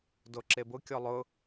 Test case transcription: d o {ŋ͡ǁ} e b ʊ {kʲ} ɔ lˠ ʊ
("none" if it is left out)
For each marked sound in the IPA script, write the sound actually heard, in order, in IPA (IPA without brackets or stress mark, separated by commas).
ǁ, kʲ